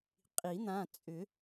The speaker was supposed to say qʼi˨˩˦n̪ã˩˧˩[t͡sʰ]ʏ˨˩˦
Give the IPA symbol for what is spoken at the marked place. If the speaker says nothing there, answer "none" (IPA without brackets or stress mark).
t͡sʼ